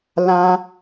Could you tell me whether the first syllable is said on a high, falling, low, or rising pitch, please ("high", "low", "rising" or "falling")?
high